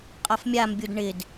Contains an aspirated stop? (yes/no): no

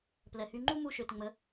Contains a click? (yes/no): yes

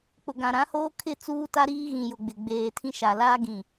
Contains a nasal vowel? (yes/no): yes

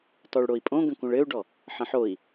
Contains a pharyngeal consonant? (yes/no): yes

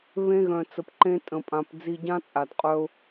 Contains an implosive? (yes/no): no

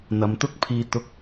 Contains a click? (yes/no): no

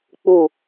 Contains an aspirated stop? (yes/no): no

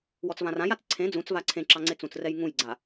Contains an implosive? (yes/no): no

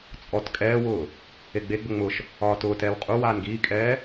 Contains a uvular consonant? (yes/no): yes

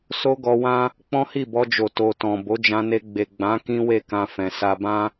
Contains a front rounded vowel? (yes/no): no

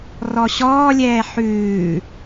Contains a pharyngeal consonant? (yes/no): yes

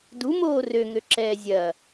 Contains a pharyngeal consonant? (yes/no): no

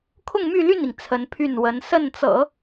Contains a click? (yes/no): no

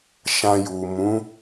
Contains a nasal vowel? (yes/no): yes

